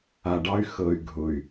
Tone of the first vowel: low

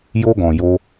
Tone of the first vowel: high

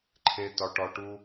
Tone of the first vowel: high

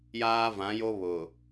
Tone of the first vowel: high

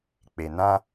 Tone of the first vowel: low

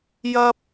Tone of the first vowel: high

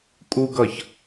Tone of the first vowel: high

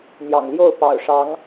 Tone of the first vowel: low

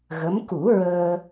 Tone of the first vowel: rising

